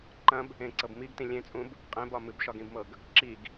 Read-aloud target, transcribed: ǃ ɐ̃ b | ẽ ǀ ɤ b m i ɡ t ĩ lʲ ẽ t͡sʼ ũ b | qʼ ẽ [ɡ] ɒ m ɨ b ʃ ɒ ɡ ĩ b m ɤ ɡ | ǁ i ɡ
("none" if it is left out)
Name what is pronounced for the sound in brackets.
b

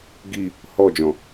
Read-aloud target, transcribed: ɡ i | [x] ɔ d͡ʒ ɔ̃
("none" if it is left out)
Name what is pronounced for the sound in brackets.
h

